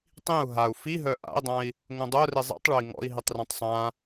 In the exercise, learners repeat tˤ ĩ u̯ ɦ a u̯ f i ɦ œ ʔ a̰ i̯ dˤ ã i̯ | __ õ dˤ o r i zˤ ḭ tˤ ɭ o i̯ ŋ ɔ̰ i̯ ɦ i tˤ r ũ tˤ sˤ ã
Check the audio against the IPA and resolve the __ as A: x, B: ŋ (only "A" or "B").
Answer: B